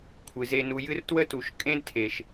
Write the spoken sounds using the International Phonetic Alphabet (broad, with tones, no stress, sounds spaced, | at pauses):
kʷʰ ɨ˩ z e˨ n u˨ j ɨ˦ r t w ə˥ t u˨ ʃ kʼ ẽ˦ d tʰ e˩ ʃ